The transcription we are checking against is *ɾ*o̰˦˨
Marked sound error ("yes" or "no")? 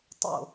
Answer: yes